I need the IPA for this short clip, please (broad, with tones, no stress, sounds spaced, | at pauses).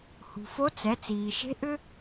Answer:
h ṳ˩ f o˧˥ t͡s ɛ˩˧ t͡s iː˩ ʃ e̤˧˥ ʔ ʏ˥